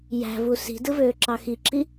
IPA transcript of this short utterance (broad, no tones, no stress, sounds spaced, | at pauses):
j æ̤ v u s i̤ d ɯ v øː ǁ ɑ x i ǁ i